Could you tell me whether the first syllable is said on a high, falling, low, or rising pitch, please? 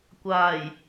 low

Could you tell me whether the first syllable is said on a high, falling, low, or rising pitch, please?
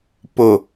low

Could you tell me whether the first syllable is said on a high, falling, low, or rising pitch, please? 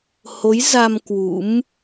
rising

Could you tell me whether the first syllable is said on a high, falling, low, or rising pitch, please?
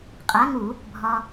rising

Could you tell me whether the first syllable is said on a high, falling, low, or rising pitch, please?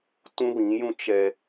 high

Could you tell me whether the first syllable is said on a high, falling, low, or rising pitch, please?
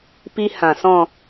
high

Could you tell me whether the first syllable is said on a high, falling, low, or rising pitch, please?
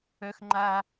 high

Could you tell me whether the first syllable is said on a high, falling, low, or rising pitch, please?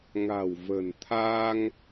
low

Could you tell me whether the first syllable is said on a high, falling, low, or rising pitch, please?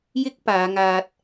high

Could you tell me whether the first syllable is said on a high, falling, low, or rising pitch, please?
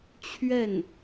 falling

